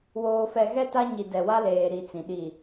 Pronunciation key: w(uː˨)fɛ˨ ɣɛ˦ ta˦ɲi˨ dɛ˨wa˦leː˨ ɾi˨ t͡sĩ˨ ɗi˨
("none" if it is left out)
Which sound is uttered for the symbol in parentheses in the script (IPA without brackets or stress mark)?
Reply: oː˨